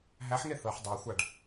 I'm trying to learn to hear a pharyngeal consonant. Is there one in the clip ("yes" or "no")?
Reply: yes